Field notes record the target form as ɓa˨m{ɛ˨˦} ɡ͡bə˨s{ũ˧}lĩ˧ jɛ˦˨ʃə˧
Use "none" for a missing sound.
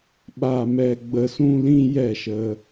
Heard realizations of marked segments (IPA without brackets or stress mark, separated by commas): ɛ˨, ũ˧